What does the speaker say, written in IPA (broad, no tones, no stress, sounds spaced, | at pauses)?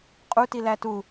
qʼ u t i l æ t u